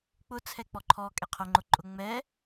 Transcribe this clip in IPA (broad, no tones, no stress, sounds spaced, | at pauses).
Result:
k͡p ʊ t͡sʰ ɛ k͡p ɔ ǃʰ ɔ kʼ ɛ qʰ ʊ ŋ͡ǃ ʊ ǃʼ ʊ ŋ͡m ɛ